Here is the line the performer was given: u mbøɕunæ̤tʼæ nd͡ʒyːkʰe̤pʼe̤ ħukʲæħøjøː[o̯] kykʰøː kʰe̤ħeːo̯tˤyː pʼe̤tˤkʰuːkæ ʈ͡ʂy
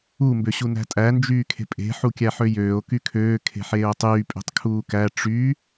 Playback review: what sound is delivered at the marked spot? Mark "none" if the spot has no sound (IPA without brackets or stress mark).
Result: o̯